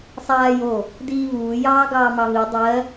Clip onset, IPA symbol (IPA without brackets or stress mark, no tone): sˤ